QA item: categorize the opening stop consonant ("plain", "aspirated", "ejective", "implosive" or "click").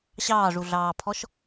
aspirated